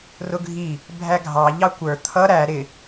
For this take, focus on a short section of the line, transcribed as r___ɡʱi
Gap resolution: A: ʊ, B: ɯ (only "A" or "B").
A